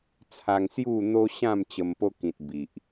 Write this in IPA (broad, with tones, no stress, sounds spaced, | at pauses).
t͡sʰ a˧ ŋ s j u˥˧ n̪ o˦ ɕ ã˥˧ m t͡ɕ ə˧ m p o˦ k ĩ˨ t̚ b i˨ ʔ